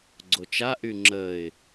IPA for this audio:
ɡ͡ǀ o t͡ʃ a ʔ y ŋ͡ǁ ə ɪ̯

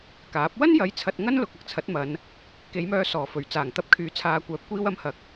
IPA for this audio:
k aː˨˥ p̚ w ɐ˥ n j ɐ˨˧ j t͡sʰ ɐ˧ t̚ ŋ ɐ˥ n l ʊ˨ k̚ ɐ˨ k̚ t͡sʰ ɐ˨˥ t̚ m ɐ˨˧ n | k e˨˧ j m œː˧ s ɔː˨˩ f ɵ˨˩ ɥ t͡s aː˨˩ ŋ t̪ ɐ˧ p̚ kʰ yː˨˥ t͡sʰ aː˨ kʷ œː˨˥ p̚ kʷ iː˧ w ɐ˧ m h ɐ˨˥ k̚

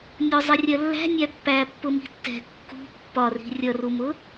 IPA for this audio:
nʲ ʊ zˤ ɪ rʲ ɜ lː æ̤ nʲ æ pː æ pː ʊ m i̤ tː ɛ̤ kː ṳ pː ɒ r i̤ rʲ ʌ r u m ʊ

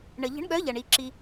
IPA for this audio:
ɳ ə˩ ʎ ə̤˨˥ ɳ ɠ œ˨˥ ʎ ɐ˩ ɳ i˩ ǁ i˩

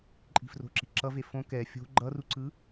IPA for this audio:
ǃʼ i̤ f r o̤ ǁ i ǁ ʌ v e f õ k ɛ fʲ o̤ ɡ͡ǃ ʌ r u ǀ ɯ

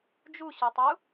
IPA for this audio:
d͡ʒ u ɕ o tˤ u

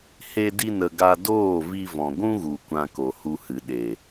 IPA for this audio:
h e˧ d i˧ n ə˨ ɡ a˧ d oː˦˨ v i˧ v ɔ̃˨ ɡʷ ũ˦ ɣ u˨ kʷ ã˧ k o˨ h u˧ h ɨ˨ ɗ e˨

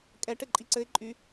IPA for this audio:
kʼ ɛ ʈ ɘ ǃʼ i ǀ ɘ ɪ̯ ǃʼ y

